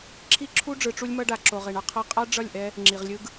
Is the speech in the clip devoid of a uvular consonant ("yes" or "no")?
no